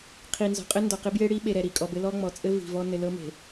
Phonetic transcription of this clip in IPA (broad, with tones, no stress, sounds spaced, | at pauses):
qʰ i˨ n z ɔ̤˨ qʼ ɘ˦ n d ɔ˨ q ɪ˦ b j e˦ ɽ i˦ ɓ e˨ ɾ ɛ˨ ɾ i˨ kʼ ɔ˨ b ɘ˦ l ɔ˦ ŋ͡m ɔ˨ t͡sʼ ɘ˦ v i̤˨ v ɔ˦ n ɘ˨ l ɤ˦ m e̤˨